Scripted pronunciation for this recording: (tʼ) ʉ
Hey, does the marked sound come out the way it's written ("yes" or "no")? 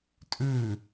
yes